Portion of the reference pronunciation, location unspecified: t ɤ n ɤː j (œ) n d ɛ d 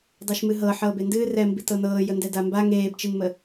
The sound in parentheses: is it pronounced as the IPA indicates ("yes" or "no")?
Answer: no